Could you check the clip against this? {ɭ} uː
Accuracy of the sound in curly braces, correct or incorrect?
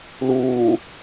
incorrect